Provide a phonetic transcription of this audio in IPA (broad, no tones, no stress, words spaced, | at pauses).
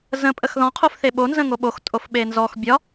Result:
zə̃ pʼəxðɔ̃ qʰofθeɓo nzə̃ŋoɓox tʼofɓenzɔx bʲɒ